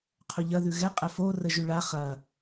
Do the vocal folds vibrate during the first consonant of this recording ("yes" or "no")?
no